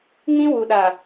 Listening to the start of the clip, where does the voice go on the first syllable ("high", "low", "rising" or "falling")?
high